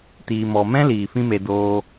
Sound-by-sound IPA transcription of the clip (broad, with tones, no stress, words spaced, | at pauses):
tiː˨mɔ˨mɛ̃˦ liː˨fĩ˦me˧ doː˧